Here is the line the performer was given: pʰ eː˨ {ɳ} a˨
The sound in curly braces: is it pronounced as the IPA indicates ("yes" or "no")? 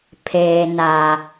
no